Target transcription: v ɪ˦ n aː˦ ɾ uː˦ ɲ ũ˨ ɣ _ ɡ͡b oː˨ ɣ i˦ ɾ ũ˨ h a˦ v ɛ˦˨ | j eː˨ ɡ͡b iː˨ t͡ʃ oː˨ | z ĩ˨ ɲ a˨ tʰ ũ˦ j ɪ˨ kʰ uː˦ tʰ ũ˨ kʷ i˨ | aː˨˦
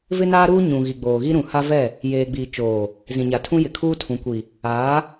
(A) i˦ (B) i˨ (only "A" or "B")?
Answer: B